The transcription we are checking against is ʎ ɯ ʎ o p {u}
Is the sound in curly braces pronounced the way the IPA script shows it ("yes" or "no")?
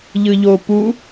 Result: yes